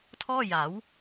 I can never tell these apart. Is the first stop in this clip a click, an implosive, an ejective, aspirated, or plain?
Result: aspirated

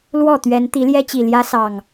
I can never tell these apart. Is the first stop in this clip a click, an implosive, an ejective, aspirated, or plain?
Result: plain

